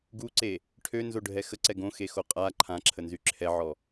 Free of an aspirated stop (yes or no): no